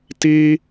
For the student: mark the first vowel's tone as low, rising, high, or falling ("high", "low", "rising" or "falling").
high